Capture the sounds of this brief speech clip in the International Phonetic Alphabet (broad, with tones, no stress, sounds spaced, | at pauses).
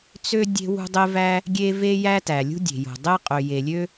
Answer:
t͡s ø˥ dʲ e̤˥ w ṳ˥ dˤ e˥ v æ˥ | ɡʲ e˥ v e˥ j æ˥ t æ˩ lʲ ṳ˥ dʲ e̤˩ j o̤˩ dˤ e˥ qʼ ø˩ j e˩ lʲ ø˥